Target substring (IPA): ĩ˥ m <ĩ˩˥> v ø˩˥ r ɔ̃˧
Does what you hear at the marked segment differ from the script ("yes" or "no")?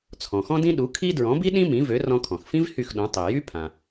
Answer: no